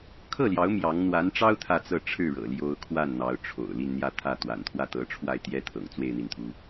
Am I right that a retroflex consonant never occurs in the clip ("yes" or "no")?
no